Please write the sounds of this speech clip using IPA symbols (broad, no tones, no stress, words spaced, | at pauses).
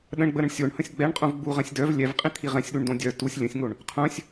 ɗə̃ɳɡ͡bəɾə̃ɳ sʲoɳhə̃sʲ ɡ͡bɛɳqʼũvɡ͡buʁɛ̃sʲ dœv lʲɛvqʼĩt̪ʰi ʁɛ̃sʲɗuɳdõ dʲœ tusʲ lʲə̃sʲŋoɳ | qʰœ̃sʲ